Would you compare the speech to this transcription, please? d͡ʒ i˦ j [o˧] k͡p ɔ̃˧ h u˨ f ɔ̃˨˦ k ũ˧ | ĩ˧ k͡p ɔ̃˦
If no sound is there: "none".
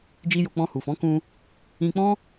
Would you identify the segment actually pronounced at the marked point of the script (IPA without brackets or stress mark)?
o˧